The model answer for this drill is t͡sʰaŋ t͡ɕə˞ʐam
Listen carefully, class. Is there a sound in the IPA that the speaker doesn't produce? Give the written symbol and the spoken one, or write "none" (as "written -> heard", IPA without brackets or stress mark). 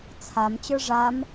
ŋ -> m